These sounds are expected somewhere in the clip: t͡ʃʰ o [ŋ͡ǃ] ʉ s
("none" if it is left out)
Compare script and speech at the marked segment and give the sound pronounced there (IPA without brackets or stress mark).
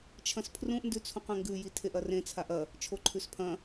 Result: ǃʰ